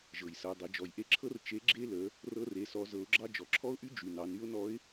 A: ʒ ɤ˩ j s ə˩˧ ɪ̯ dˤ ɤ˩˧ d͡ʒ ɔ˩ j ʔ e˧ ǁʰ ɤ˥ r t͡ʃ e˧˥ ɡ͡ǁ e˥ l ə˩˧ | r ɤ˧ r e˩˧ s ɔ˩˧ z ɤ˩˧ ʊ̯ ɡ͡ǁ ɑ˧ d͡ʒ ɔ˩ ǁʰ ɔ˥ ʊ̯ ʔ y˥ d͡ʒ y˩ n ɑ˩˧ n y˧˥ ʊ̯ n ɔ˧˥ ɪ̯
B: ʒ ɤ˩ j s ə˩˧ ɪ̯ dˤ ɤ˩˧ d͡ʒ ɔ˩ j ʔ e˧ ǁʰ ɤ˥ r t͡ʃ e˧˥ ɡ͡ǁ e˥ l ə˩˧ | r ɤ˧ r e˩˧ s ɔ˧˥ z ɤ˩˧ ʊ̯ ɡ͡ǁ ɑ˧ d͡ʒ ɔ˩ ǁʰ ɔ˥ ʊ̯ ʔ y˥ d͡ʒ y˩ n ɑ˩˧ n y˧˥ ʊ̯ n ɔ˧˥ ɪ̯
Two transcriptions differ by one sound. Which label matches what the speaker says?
A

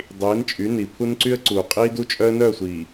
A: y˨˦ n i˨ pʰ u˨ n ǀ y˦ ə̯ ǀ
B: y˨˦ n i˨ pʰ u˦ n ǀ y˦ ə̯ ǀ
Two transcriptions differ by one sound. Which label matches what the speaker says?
B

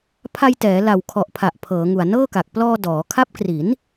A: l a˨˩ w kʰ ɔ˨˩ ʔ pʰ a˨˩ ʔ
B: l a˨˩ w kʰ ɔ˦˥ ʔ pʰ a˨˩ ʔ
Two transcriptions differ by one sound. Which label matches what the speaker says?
A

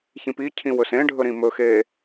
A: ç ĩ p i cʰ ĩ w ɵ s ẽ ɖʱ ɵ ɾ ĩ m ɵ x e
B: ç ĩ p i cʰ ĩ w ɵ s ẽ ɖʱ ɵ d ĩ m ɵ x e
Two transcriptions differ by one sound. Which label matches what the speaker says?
A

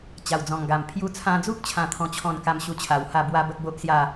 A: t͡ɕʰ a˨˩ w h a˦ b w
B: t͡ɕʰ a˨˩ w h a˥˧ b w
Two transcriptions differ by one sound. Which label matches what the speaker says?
B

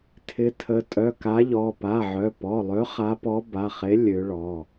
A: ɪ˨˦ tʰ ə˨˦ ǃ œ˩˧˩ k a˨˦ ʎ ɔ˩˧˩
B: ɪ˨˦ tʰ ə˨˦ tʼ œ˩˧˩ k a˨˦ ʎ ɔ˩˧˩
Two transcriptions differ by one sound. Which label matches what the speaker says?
B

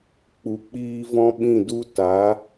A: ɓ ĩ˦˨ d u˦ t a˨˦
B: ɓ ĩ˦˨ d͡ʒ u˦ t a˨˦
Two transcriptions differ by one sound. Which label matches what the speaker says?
A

